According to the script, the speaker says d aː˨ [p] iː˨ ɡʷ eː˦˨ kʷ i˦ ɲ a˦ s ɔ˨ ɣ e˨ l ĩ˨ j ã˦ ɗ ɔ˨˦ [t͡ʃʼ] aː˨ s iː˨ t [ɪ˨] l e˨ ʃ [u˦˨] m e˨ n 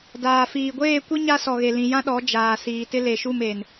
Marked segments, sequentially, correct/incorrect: incorrect, incorrect, incorrect, correct

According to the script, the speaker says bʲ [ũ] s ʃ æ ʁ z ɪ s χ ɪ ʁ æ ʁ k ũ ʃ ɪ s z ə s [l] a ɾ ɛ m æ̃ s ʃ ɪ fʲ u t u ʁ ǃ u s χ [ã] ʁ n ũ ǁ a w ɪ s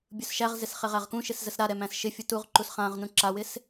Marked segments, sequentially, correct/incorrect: incorrect, incorrect, correct

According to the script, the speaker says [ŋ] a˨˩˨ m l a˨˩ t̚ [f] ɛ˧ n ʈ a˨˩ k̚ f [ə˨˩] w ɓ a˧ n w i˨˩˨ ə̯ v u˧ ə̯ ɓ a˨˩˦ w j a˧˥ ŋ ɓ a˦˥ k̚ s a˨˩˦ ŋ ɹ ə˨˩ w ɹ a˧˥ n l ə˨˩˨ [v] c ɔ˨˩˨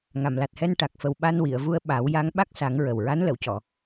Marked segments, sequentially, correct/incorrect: correct, incorrect, correct, incorrect

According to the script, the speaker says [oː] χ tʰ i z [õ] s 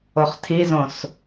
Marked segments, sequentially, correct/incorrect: incorrect, correct

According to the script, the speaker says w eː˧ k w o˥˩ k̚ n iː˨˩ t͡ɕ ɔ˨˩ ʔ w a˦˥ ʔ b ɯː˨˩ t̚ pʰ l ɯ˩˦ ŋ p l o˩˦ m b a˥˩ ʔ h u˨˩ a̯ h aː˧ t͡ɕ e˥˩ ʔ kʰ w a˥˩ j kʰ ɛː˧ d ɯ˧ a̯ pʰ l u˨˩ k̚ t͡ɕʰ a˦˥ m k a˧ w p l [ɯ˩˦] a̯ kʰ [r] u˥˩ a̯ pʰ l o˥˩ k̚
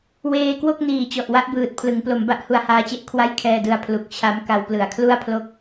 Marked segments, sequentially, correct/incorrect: correct, incorrect

